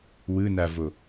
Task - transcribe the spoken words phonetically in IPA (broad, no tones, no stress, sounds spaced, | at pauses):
w ɯ n a v o